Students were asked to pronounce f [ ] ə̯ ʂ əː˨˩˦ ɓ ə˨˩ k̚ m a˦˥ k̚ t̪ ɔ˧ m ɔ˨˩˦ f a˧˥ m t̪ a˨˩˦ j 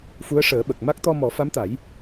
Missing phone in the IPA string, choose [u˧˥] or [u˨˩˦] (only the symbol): u˧˥